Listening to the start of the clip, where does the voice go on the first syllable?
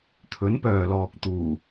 rising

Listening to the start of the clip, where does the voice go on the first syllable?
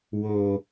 low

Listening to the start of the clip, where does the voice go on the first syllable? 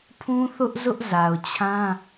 high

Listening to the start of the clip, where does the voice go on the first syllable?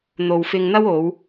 low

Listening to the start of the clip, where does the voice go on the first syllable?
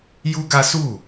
high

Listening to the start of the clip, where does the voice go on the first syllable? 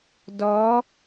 rising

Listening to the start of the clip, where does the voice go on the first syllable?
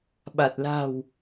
low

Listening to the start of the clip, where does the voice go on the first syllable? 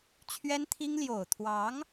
high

